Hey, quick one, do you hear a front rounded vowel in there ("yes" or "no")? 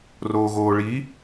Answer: no